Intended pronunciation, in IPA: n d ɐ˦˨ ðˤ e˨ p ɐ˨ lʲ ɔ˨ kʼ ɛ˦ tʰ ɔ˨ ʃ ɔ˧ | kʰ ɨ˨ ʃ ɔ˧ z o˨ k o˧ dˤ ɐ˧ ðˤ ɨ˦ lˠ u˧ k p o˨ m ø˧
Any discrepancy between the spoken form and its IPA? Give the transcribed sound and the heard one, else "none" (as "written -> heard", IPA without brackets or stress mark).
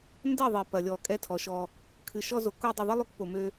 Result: none